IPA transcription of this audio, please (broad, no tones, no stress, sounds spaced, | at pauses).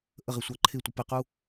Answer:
ʔ ə ʁ ɪ sʷ a ǃʰ ɪ tʷ ɪ p ɪ q u